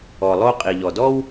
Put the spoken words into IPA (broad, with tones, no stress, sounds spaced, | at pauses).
ɔ˨ lˠ o˦ qʼ i˩ ʎ ɔ˩ d ɔ˥ w